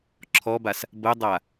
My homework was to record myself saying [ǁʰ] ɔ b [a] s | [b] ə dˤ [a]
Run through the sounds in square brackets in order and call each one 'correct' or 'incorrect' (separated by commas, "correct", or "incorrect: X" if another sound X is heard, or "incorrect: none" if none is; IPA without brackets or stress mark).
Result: correct, correct, correct, correct